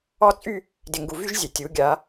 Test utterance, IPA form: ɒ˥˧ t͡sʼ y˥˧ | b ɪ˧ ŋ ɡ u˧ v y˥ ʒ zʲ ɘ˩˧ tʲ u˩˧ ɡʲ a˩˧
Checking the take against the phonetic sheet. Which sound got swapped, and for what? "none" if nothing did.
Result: b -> d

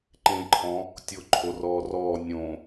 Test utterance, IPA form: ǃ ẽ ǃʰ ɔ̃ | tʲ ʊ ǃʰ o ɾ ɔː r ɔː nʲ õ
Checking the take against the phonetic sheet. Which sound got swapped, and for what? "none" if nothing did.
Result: ɾ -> r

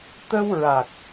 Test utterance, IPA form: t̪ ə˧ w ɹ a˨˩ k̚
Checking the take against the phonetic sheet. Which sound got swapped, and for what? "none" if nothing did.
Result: none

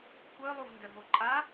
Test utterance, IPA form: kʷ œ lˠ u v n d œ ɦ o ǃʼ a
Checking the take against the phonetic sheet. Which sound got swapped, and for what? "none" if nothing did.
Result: none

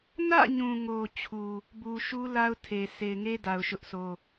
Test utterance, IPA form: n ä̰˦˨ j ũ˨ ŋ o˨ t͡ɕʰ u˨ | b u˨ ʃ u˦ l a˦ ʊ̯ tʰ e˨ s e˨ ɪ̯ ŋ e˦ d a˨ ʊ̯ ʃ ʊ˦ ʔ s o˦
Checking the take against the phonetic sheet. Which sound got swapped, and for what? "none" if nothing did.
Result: j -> ɲ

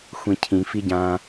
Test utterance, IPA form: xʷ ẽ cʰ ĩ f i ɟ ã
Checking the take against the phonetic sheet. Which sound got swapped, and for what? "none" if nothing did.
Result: ẽ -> ĩ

